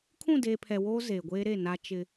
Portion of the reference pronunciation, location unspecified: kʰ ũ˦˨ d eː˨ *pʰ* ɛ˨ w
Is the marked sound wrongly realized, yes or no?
no